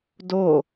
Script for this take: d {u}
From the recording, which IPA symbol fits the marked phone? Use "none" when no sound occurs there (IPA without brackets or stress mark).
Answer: o